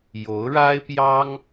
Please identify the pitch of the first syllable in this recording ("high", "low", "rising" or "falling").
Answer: rising